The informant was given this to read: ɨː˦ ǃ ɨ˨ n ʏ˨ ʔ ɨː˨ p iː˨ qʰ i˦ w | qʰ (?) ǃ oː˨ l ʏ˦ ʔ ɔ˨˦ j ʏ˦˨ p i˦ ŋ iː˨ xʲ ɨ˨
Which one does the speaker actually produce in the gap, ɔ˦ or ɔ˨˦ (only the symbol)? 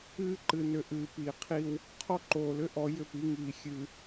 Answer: ɔ˦